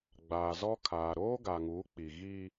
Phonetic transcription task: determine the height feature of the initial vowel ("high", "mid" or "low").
low